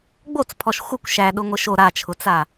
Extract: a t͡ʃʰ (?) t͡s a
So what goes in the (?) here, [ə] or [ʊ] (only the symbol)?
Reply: ʊ